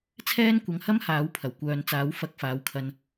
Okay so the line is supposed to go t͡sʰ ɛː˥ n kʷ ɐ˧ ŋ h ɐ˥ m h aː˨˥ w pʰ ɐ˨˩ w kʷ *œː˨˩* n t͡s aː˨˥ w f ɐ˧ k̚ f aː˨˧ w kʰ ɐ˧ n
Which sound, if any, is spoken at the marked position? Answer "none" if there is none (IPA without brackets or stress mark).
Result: œː˨